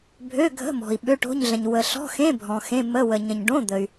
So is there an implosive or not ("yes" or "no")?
yes